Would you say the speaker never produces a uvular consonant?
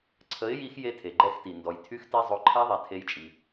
yes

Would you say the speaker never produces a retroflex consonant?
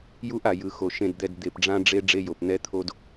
no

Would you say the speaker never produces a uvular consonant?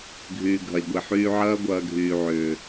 yes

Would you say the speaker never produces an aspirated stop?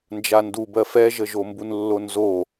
yes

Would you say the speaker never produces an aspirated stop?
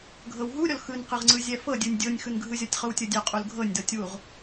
yes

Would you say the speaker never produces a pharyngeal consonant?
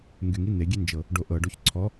yes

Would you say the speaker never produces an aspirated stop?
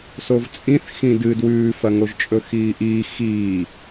yes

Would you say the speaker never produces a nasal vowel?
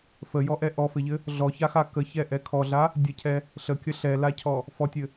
yes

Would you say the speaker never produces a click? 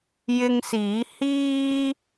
yes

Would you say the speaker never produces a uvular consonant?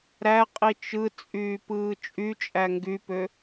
no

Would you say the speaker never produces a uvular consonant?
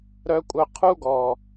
no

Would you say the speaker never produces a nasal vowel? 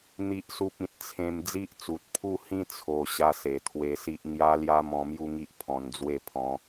no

